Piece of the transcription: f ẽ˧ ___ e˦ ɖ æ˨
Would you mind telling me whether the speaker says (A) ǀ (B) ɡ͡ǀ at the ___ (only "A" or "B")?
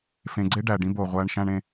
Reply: B